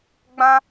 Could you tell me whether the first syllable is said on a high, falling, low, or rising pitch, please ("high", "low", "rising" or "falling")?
high